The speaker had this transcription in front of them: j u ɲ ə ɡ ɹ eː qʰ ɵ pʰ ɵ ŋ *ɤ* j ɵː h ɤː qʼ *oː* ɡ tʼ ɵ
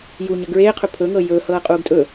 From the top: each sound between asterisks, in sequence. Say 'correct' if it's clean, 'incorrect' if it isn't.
correct, incorrect: uː

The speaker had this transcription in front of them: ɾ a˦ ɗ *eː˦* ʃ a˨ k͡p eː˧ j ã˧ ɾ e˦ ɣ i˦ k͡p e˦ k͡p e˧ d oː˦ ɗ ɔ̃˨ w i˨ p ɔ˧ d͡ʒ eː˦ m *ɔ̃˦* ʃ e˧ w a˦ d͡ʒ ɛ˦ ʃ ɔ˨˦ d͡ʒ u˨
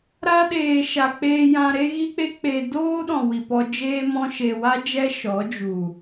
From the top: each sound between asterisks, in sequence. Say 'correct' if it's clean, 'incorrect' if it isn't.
incorrect: eː˨, correct

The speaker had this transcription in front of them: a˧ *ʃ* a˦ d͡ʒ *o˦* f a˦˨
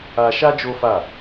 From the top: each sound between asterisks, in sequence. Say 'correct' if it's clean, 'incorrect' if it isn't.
correct, correct

